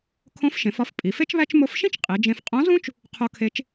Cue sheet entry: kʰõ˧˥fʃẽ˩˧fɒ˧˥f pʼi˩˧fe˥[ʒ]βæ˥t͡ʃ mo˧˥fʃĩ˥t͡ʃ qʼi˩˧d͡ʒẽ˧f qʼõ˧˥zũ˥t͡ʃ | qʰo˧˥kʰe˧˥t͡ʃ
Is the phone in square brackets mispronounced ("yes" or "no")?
yes